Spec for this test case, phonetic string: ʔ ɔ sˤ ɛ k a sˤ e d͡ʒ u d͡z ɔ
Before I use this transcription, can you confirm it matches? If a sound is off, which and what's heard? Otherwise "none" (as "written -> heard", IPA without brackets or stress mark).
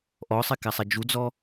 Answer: none